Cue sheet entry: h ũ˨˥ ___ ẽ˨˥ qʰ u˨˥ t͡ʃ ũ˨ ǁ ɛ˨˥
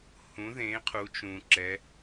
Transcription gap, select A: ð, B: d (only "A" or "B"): A